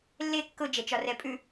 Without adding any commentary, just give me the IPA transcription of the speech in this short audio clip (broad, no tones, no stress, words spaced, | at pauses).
lːe kːʊd͡ʒɛt͡ʃɒ rɛpʼʉ